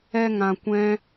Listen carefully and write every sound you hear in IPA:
ɛ˧ ŋ ã˧ kʷ ɛ̃˦

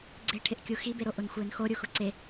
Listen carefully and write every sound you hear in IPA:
ɡ͡ǀ e ʈʰ ɪ ʔ kʲ u x i b e ɾ o ʔ ʊ n xʷ ɪː n x o ɾʲ u x ʊ ǀ e

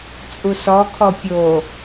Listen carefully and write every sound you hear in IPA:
t͡sʼ u s ɔ kʰ ɔ pʲ o

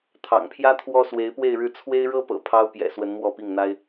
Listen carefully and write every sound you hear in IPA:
t̪ʰ ɑ̰˨˩ ŋ pʰ j ä˥ t̪ʰ w ɔ˥ s w e˧˥ ɪ̯ p w e˥˧ ɪ̯ ɻ ɻ̩˥˩ t͡sʰ w e˥ ɪ̯ ɻ ɤ˥ p ɤ̰˨˩ pʰ ɑ˥ ʊ̯ p j ɛ̰˨˩ s w ə˧˥ n m w ɔ˥˧ p i˥˩ ŋ n̪ a˥ ɪ̯

